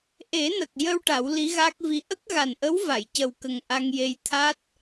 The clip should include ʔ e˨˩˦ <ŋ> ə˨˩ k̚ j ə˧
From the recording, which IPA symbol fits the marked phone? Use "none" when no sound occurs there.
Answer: n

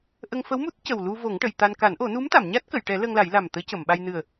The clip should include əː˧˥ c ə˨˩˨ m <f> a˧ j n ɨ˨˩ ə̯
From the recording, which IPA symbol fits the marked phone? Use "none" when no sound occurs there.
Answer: ɓ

